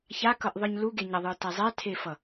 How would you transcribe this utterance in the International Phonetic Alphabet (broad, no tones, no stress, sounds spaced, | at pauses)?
ç a k ʌ ʔ ðˤ ɯ ɲ l u ɡ e ɲ ʌ ðˤ ɯ t ɛ zˤ ɛ tʰ e f ʌ